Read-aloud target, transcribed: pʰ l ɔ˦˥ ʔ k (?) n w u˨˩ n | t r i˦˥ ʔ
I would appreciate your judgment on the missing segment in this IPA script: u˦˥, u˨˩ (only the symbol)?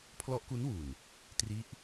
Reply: u˦˥